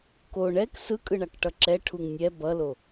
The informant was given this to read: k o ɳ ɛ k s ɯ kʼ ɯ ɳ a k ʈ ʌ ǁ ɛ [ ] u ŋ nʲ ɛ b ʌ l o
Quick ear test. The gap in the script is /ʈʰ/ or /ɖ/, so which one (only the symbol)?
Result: ʈʰ